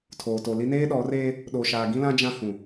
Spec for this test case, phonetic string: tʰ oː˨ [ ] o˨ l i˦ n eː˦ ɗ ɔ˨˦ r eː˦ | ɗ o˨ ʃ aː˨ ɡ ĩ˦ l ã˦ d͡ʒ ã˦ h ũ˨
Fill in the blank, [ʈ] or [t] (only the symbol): t